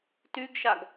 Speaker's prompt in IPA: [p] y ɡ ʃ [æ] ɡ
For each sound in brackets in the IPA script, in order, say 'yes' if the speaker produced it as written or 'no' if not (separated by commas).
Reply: no, no